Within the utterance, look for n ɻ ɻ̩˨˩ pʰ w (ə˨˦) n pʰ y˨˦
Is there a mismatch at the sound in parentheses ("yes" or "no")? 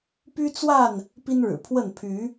yes